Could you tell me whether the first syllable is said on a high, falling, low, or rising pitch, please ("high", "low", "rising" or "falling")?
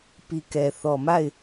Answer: low